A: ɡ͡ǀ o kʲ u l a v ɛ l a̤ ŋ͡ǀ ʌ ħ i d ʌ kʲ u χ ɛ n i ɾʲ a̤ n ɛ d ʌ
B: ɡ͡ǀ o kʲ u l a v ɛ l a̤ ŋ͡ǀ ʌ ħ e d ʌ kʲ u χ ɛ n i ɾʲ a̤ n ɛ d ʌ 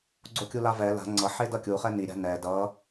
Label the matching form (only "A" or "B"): B